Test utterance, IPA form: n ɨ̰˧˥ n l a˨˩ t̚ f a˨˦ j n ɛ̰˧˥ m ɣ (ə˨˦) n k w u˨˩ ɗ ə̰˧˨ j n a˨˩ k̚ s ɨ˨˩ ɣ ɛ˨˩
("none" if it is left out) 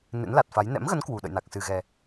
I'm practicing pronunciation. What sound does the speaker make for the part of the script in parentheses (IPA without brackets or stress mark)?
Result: ə˨˦